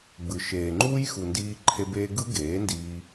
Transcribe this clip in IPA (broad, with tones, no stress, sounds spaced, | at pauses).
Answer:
ɡ͡b ɯ˨ ʃ eː˨ ŋ͡ǃ uː˦ j x u˨ n d iː˧ ǃʰ e˧ b eː˧ ɡ ɯ˦ ɡ eː˨˦ n d iː˧